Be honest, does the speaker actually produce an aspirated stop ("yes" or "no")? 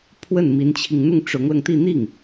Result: yes